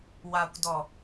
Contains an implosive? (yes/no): no